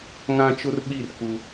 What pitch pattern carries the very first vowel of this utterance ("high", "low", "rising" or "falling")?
high